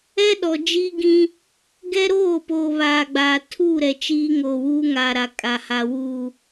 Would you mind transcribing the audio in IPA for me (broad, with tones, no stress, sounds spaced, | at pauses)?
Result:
ɛ˦ ɗ ɔ˨ d͡ʒ i˦ ɡ ĩ˦ | ɡ ɛ˦ ɾ oː˦˨ p oː˨ β aː˨ ɡ͡b aː˨ tʰ uː˦˨ ɾ ɛ˨ t͡ʃ iː˦ ŋ oː˨ w uː˦ ŋ aː˨ ɾ a˨ kʼ a˨ h a˨ w uː˨